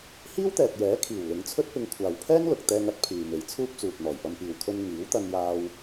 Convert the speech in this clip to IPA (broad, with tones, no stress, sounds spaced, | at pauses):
h iː˥ w t̪ ɛː˨ t̚ j ɛː˨˥ kʰ iː˨˩ w l ɪ˨˧ ŋ t͡sʰ ɵ˥ t̚ p ɪ˧ ŋ kʷʰ aː˨ w pʰ ɛː˥ ŋ l ʊ˨ k̚ t̪ ɛː˧ ŋ ɐ˧ t̚ pʰ yː˨ m e˨˧ j t͡sʰ uː˥ p̚ t͡s uː˨ t̚ n̪ ɔː˨˩ j p ɐ˧ m p iː˨ w kʰ ɵ˧ n ŋ iː˨˥ w t̪ ɐ˧ n j aː˧ w